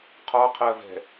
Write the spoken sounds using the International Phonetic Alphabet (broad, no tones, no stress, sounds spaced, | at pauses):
qʰ ɒ qʰ ɜ v ɛ̤